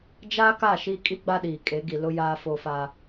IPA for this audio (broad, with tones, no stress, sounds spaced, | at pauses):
d͡ʒ aː˦ k a˦˨ ʃ iː˦ kʼ i˦ ɡ͡b a˦ ɗ iː˨ kʼ e˨˦ ɡ i˨ l ʊ˦ j aː˦ f o˦ f aː˦